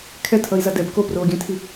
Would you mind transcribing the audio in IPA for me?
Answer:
kʰ ɛ tʰ ʌ i̯ z a d ɛ b k o p r oː ɡʲ ɛ̃ tʰ i

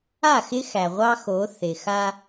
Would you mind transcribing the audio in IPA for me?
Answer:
a˦˨ x ɪ˦ x æ˨ ʁʷ ɑ˦ x o˨˦ θ ɪ˨ x a˦

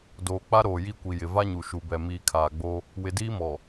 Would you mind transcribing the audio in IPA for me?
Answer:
d oː˨ k͡p a˦ ɾ oː˨ j i˦˨ kʷ i˨ j ɪ˨ v a˦ ɲ u˨ ʃ u˨ b ɛ˨ m iː˨ kʰ aː˨ ɡ͡b o˦ | w ɪ˨ d iː˦ m ɔ˨

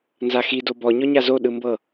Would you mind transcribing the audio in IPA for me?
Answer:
n z a x i d o b ɔ ɲ ɔ ɲ a z o ɗ ɯ m b ɤ

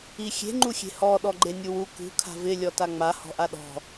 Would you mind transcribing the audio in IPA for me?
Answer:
i xʲ e̤ ŋ͡ǃ u xʲ e̤ h ɔ ɗ ɔ ɡ͡ǃ e nʲ u w u k ṳ kʰ a̤ v ɪ lʲ ɔ t a ŋ͡m a h ɔ̤ ʔ a ɗ ɔ̤

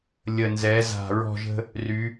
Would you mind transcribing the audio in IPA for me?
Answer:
lʲ ə˨˩ n z ɛ˩˧ z a̤˨˩ ɹ ɔ̤˦˨ ʒ ə̤˦ | r y˩˧

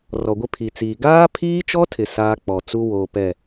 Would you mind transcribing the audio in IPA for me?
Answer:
r ɔ˨ ɡʷ ɪ˦ pʰ i˨ t͡s iː˨ ɡ aː˦ pʰ iː˦ t͡ʃ ɔ˦ tʰ ɪ˨ s aː˦ k͡p ɔ˨ t͡s u˦ w oː˨ p ɛ˦˨

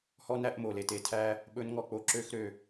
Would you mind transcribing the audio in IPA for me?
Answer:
h ɔ˦ n æ˦ ʔ m o˨ l e˨ t e˨ tʰ æ˦ | ɓ ɵ˦ n ŋ ɔ˦˨ k͡p o˦ ǁ ø˦ x ɾ ø˦˨

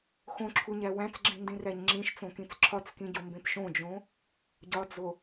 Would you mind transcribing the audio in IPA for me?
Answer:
x õ ǁʰ u ɲ æ w æ̃ t͡s ɡ͡ǁ ĩ n d ĩ r æ ɲ ŋ͡ǁ ĩ ʃ t͡s õ k ĩ t͡s ǁʰ ɒ t͡s k ĩ ɟ o m b ẽ p ʃ õ d͡ʒ õ | ɟ ɒ d͡z o

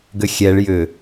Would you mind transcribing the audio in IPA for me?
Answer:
ɡ ʏ xʲ ɛ ɭ j ʏ

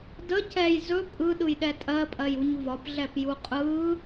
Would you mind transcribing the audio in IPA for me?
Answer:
d ə c ɛ j z ɵ pʼ ɯ ɗ ɯ j ɗ ɛ tʼ ɜ pʼ ɜ j u ɲ v ɒ p ɮ ɛ p j u qʼ ɯ

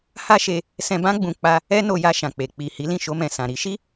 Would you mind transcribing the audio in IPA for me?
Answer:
h a˦ ʃ e˧ | s ɛ̃˧ b ã˦ ɡ͡b ũ˧ k͡p a˧ | ɛ˦ n o˧ j a˧ ʃ ã˨ k͡p e˨ k͡p i˨ h i˨˦ l ĩ˦˨ ʃ o˧ m ɛ̃˨ s ã˨ ɾ i˨˦ ʃ i˦

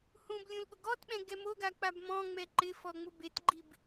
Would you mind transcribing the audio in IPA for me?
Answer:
h ũ b lʲ ũ l ɠ ʊ ɡ ɔ t ɓ ɛ̃ ɡ ɛ m o ɡ a k͡p a b m ɔ̃ ŋ͡m ɛ ǃ ɪ f ɔ ŋ͡m ʊ b e t ɡ͡ǃ i b

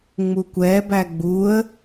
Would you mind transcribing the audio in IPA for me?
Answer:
ŋ͡m u kʷ ɛ b æ ɡ͡b u ə̯

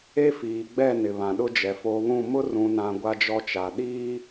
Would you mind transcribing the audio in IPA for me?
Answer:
e˦ f iː˨ ɡ͡b ɛ˦˨ n ɪ˨ β ã˨ ɗ ʊ˦ d͡ʒ ɛ˨ f o˨ β ũ˦˨ m ʊ˦ r ũ˨ n ã˨ ɡʷ a˦ d͡ʒ ɔ˦ t͡ʃ a˨ ɗ iː˦

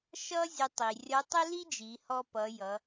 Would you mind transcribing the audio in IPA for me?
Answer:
ʃ ʌ˥ zʲ ə˧ tˤ i˩ rʲ ʌ˧˥ tˤ ə˥ l i˥ d͡ʒ i˩˧ h ɔ˧ p ʌ˩˧ j ʌ˩˧

